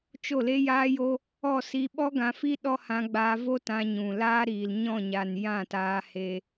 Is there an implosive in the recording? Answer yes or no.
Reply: yes